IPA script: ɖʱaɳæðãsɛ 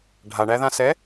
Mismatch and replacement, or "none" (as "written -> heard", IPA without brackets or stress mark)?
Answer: none